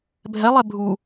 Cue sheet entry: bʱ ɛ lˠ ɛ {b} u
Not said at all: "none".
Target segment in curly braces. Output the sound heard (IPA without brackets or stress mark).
bʱ